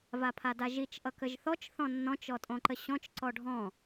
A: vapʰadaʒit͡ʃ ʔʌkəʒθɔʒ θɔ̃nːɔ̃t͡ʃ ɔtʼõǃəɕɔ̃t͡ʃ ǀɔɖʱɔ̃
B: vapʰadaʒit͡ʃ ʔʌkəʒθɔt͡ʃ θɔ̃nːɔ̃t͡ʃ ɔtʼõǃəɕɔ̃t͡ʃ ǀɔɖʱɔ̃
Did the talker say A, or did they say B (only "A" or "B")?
B